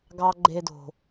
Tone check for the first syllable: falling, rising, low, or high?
high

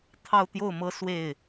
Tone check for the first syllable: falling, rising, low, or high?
falling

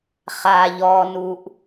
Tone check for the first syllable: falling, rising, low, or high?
low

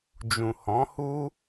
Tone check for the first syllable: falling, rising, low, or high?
low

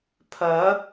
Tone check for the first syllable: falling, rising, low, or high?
rising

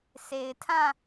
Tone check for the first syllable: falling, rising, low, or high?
low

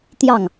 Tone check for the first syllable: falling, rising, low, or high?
falling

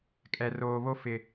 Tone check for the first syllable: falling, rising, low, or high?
low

